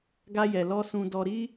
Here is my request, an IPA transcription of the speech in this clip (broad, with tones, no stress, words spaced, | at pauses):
ɡa˧jɛ˨lɔ˧ sũ˧dɔ˧ɾi˦